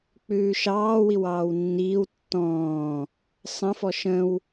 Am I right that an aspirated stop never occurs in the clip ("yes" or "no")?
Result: yes